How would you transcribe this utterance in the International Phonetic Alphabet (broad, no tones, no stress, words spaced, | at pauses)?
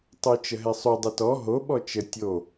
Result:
tˤut͡ʃəɦɛsˤu dˤətɔ ɦo ɓɔt͡ʃə tʲo